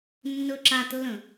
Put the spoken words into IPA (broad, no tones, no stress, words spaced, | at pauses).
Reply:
nːɵǁatlːə̃